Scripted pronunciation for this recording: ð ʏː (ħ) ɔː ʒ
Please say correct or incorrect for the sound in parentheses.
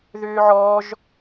incorrect